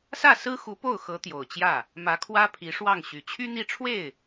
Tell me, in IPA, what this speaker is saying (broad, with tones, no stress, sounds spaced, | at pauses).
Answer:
s ä˥˩ s ɹ̩˥ x u˧˥ p o˥˩ ʊ̯ x ɤ˧˥ t̪ j o˨˩ ʊ̯ t͡ɕ j ä˥˩ | m ä˧˥ kʰ w ä˥ pʰ i˧˥ ʂ w ɑ˥˩ ŋ ɕ y˨˩ t͡ɕʰ y˥ n̪ i˥˧ ʈ͡ʂʰ w e˥˩ ɪ̯